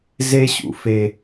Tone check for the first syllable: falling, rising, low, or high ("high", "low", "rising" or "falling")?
high